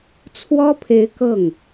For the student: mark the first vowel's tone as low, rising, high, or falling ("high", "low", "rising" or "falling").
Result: high